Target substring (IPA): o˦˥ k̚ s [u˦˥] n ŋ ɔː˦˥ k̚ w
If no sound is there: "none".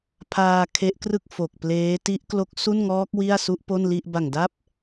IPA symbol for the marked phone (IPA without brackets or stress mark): u˥˩